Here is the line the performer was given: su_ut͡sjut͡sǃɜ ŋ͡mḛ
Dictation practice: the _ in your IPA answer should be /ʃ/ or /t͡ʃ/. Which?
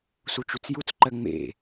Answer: t͡ʃ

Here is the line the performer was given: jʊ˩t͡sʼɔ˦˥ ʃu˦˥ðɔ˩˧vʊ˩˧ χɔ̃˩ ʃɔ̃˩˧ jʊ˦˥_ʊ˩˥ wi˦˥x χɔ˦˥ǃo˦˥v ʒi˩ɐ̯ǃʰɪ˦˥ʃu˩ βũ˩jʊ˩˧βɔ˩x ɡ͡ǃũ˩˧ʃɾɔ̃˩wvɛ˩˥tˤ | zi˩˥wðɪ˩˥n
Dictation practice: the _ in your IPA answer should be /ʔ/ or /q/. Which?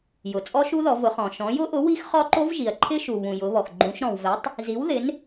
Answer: ʔ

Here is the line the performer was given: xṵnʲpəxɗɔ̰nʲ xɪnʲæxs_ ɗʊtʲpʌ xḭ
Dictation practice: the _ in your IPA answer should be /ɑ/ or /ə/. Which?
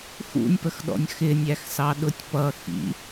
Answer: ɑ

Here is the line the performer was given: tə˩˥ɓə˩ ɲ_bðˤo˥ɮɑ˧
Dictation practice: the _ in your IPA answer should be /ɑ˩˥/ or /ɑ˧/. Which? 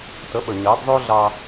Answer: ɑ˩˥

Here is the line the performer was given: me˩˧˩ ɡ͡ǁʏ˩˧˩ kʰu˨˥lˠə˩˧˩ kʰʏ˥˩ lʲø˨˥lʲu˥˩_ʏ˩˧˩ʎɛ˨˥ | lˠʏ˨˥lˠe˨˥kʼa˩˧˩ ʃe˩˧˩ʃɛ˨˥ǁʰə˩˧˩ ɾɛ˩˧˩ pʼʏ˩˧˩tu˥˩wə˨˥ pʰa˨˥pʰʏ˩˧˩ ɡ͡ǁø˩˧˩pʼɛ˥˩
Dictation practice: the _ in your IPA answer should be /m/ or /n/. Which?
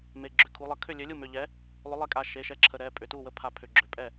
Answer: m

